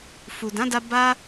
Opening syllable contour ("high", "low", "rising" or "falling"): low